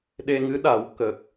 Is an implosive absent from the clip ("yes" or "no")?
no